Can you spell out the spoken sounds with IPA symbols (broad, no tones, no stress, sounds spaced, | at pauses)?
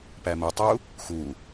p æ m ə tˤ u | x u